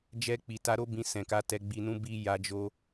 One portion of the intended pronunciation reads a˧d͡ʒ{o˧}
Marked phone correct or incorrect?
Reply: correct